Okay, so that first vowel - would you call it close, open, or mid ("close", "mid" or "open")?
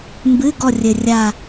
close